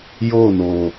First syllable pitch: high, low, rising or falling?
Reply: falling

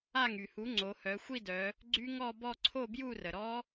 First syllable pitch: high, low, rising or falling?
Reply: falling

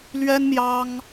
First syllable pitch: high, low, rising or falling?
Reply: high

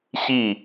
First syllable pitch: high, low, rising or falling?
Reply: falling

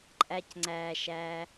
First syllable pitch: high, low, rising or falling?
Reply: low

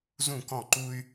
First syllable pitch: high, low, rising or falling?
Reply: falling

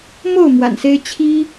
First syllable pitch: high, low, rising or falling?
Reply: falling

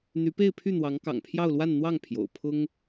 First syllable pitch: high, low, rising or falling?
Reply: rising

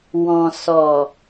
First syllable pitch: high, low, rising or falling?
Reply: low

